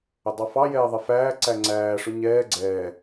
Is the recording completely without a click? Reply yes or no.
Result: no